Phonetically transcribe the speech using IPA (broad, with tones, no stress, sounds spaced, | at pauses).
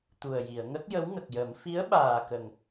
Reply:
t̪ u˨˩ ə̯ j i˨˩˨ ə̯ ŋ ə˦˥ k̚ j ə˧˥ w ŋ ə˨˩ k̚ j ə˨˩˦ m f i˧˥ ə̯ ɓ aː˨˩ k ə˨˩ ŋ